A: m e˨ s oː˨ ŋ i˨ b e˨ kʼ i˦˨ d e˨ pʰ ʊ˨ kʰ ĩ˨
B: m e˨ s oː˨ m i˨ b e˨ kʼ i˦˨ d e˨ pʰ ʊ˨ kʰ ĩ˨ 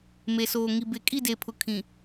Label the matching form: A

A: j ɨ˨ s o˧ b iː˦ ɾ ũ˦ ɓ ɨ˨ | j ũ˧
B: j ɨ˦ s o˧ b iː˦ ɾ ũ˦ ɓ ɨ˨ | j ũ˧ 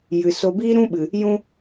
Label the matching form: A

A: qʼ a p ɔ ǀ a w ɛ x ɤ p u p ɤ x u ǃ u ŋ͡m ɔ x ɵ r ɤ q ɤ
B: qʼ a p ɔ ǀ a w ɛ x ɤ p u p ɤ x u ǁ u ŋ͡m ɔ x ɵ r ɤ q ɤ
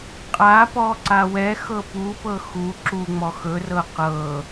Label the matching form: B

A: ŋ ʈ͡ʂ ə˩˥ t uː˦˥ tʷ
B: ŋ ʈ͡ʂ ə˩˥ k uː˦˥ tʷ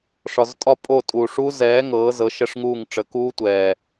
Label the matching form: B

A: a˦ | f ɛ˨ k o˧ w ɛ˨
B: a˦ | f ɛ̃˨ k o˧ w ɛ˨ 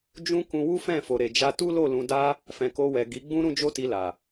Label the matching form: B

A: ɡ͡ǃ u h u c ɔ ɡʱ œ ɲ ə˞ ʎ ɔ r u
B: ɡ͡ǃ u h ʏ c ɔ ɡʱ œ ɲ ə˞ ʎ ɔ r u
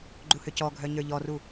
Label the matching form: B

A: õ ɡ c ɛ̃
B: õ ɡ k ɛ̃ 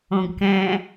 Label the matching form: B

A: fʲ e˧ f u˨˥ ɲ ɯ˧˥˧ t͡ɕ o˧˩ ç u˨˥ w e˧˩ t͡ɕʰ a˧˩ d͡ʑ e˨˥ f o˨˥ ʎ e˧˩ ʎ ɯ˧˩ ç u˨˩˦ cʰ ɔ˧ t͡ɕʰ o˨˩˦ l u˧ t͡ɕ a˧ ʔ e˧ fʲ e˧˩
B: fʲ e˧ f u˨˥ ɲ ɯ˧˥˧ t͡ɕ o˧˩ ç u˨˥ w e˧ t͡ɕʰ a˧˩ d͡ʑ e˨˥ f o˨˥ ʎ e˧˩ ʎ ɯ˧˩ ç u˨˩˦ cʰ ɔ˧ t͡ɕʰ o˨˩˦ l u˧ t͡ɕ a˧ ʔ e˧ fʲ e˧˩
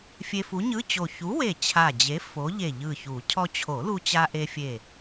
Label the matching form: A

